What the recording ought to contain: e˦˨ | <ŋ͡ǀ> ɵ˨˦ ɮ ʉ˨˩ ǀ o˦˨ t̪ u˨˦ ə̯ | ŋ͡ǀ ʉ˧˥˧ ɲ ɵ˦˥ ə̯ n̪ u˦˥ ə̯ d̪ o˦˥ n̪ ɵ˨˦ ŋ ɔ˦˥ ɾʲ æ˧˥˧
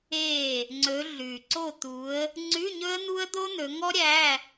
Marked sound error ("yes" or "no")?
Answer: no